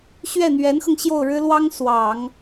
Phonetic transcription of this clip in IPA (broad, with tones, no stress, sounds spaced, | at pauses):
ɕ ɥ ɛ˥˩ n̪ ɥ ɛ˧˥ n x ɤ˧ ŋ ɕ j o˥˩ ʊ̯ ɻ ɻ̩˥ l w ɑ˥ ŋ s w ɑ˨˩˦ ŋ